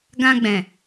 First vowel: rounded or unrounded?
unrounded